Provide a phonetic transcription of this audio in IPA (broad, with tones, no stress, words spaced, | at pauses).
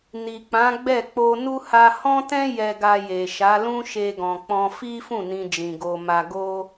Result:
ni˨k͡pã˨˦ ɡ͡bɛ˦˨ k͡po˧nu˦ ha˧hɔ̃˦tɛ̃˦ jɛ˧ɡa˧je˨ʃa˨˦ lũ˦ʃe˧ɡɔ̃˨k͡pɔ̃˧ fi˦fũ˦˨ nĩ˧d͡ʒĩ˨ ɡo˧ma˧ɡo˦